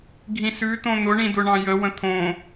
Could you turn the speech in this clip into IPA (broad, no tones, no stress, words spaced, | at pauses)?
ɡʱĩsʉ tõn̪ʊ ɳĩdʊɳɑ̃jə wə̃t̪ʰõ